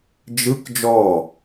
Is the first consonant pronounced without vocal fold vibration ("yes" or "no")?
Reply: no